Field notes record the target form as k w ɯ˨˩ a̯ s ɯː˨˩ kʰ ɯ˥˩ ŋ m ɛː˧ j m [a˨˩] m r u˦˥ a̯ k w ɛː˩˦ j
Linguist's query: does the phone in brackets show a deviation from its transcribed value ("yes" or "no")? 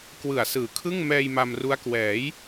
yes